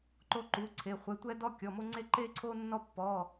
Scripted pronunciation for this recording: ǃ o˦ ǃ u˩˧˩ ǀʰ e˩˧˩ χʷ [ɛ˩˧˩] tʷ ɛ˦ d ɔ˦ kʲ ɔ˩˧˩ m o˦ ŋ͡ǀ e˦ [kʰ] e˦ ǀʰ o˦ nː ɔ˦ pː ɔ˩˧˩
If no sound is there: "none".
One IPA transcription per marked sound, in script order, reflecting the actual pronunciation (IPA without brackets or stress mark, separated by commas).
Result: ɛ˩˧˩, ǃ